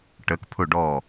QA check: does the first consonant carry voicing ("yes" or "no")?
no